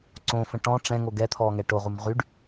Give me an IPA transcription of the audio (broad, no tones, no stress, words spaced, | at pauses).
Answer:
ǀõfə̃ ʈɔ̃ ʈ͡ʂɛ̃ŋo ɡɛt̪ʰɔːŋɛ ʈoʁum ʁyɖ